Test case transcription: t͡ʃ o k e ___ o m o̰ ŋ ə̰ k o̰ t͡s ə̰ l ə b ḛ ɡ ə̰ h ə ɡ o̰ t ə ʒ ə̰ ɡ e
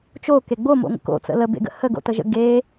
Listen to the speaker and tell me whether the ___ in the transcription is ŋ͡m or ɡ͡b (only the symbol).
ɡ͡b